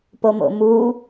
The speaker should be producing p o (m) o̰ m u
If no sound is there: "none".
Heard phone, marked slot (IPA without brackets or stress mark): m